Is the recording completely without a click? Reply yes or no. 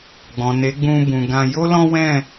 yes